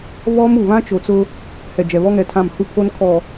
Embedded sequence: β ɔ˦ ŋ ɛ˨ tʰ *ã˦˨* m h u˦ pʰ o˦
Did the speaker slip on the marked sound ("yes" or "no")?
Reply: no